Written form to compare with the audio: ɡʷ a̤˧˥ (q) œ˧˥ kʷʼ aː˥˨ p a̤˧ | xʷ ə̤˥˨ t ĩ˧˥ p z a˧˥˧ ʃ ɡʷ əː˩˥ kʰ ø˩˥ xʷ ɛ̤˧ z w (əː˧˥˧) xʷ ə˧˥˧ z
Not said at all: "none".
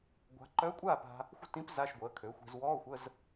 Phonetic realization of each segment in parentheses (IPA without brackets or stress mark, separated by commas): ǃ, ɔː˧˥˧